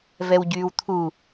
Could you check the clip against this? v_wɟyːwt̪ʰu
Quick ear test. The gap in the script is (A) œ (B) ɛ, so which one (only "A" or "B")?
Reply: B